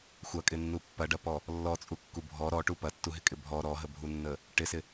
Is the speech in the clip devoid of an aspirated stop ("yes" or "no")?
yes